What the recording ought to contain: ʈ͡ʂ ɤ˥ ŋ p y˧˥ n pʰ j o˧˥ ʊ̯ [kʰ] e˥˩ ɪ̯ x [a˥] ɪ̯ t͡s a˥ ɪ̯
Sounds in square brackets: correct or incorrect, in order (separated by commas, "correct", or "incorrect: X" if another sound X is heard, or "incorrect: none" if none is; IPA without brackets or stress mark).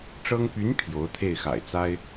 incorrect: t̪ʰ, incorrect: a̰˨˩